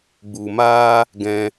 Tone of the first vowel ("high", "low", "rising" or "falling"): low